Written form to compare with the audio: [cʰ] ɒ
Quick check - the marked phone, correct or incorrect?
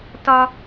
incorrect